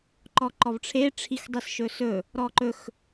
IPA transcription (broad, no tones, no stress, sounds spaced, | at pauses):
ǃ ɔ ǃ ɔ v ʈ͡ʂʰ e ʈ͡ʂʰ i x dˤ i s ʃ ɵ s ɵ | ɾ ɔ ǃ ɵ x